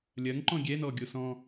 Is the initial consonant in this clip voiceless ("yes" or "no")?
no